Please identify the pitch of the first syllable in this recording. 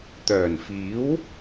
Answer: low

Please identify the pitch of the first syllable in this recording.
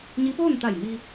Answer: rising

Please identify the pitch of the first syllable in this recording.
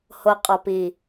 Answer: low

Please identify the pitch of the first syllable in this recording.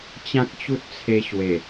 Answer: high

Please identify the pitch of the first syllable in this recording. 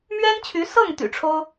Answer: high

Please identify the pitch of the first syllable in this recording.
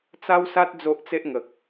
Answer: high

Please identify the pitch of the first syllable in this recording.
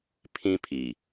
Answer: high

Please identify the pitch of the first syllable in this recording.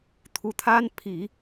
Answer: rising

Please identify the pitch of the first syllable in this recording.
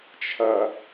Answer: low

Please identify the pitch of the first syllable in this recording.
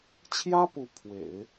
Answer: high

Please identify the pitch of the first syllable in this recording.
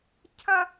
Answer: high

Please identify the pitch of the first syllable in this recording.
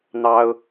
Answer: high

